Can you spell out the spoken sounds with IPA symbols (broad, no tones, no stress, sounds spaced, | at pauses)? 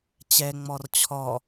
t͡ɕ ɛ ŋ͡m ɔ r t͡ɕʰ ɔ